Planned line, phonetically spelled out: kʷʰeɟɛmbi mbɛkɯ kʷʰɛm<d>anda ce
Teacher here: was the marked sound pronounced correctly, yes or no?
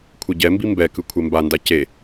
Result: no